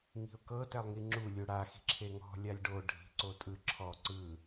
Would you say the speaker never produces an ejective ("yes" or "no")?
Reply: no